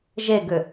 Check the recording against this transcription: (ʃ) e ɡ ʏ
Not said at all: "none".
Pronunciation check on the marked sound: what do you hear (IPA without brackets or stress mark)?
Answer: ʒ